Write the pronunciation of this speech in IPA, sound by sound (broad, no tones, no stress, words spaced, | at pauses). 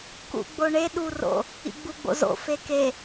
kṵɡ͡boɳe ɗuro̰ | ḭɡ͡buɡ͡bo̰zo̰ feke